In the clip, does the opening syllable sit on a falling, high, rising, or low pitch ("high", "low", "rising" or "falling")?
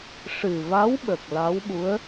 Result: low